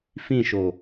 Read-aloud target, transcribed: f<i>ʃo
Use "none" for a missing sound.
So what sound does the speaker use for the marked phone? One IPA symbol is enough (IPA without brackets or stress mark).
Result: ĩ